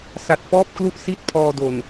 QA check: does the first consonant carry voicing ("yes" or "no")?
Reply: no